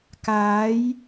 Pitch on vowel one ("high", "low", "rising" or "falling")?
rising